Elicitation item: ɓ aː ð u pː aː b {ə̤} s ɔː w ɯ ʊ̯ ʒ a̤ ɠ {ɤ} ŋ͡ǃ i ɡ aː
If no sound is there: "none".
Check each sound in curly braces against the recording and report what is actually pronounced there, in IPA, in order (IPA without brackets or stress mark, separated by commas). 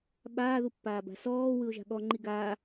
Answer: a̤, ɔ